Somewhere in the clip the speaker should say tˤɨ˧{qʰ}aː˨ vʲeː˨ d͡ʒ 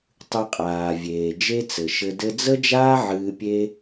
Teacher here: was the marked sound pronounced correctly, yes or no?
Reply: no